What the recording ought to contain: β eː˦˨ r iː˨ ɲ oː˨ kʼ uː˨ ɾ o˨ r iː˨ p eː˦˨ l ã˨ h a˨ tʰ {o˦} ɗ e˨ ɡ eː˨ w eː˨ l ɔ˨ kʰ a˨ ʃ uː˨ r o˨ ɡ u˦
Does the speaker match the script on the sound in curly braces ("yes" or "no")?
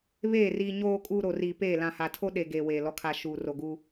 yes